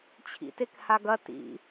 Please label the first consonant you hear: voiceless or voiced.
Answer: voiceless